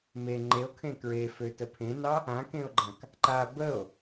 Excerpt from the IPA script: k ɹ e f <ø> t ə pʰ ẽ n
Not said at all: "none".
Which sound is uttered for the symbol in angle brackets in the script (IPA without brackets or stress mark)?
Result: ø